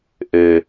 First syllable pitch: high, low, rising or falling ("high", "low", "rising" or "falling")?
low